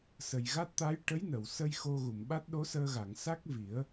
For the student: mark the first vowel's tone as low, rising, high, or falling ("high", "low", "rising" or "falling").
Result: low